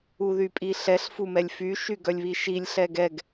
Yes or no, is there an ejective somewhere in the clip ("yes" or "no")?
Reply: yes